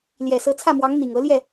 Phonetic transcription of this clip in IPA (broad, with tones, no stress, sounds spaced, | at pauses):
l j ɛ˨˩ s ɤ˧˥ t͡sʰ ä˥˩ m w ɑ˧˥ ŋ n̪ i˨˩ ŋ ɤ˧˥ l j ɛ˥˩